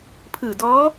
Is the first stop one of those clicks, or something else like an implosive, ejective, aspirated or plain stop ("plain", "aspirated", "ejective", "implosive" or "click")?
aspirated